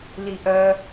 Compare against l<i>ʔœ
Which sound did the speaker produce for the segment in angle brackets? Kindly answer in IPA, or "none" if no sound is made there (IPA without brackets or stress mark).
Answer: i